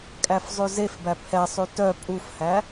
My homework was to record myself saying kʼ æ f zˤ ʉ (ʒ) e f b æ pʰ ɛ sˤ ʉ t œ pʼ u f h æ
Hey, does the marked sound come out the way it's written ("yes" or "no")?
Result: no